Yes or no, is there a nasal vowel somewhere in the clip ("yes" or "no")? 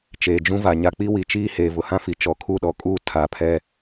yes